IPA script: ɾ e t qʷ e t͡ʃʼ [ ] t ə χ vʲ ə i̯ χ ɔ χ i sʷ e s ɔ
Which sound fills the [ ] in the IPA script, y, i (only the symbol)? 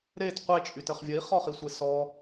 y